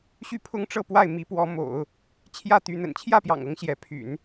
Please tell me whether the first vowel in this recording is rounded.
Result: yes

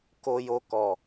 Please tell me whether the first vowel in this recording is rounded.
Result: yes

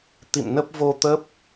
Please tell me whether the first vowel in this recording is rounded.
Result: no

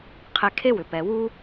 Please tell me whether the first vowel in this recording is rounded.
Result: no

